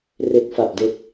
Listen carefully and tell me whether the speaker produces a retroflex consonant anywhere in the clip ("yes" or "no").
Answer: no